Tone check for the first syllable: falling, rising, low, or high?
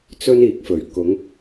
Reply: high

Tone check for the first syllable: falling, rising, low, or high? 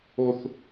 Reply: high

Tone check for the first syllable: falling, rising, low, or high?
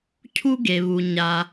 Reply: high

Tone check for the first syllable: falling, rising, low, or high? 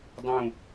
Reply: falling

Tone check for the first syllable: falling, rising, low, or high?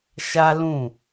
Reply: high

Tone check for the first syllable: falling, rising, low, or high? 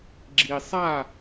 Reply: low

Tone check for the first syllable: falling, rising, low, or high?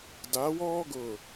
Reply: rising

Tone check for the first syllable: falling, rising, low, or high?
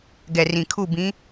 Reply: low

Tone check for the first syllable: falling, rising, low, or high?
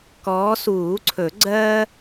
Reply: rising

